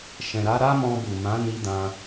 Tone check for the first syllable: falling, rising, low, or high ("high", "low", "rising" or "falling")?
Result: low